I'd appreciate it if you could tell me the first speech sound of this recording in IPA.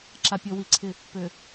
ǁ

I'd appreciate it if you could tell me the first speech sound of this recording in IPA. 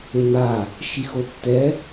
e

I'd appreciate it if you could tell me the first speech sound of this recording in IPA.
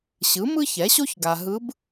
ɕ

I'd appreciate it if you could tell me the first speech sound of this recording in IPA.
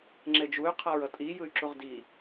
ŋ͡ǁ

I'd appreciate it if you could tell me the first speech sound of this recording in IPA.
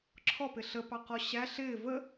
ǁʰ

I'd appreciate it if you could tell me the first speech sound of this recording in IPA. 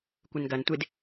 kʷ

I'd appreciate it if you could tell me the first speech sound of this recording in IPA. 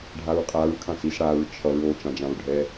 ɖʱ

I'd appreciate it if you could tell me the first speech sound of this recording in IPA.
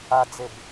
a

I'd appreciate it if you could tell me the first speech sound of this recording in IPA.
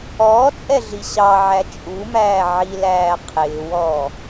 ɔː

